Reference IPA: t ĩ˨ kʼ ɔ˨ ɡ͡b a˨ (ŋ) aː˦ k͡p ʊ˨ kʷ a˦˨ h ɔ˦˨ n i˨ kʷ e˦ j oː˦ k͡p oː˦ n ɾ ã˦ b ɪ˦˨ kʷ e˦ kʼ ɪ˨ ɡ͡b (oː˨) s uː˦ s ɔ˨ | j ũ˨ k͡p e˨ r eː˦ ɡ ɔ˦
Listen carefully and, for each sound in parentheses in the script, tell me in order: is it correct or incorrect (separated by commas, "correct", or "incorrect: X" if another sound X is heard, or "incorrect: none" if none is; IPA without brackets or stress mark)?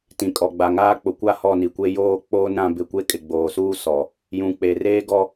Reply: correct, correct